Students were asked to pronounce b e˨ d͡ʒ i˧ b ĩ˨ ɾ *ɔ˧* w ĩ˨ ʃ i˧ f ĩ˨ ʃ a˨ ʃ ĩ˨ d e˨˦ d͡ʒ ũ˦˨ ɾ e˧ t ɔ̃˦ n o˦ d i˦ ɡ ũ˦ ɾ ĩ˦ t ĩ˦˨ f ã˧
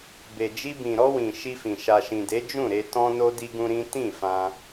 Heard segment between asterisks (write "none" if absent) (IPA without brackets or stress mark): ɔ˧